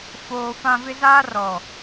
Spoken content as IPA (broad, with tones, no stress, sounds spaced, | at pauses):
f oː˦ f ã˦ v ɪ˦ z aː˦ r ɔ˨